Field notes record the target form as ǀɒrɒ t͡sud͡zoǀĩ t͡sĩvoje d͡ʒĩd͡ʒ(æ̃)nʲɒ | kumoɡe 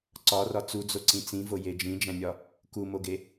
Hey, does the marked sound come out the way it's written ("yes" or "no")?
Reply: yes